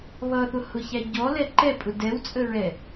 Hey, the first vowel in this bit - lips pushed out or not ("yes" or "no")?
no